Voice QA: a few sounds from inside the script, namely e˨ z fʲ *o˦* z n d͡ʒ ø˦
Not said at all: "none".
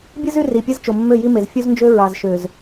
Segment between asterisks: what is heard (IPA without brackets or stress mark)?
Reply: u˦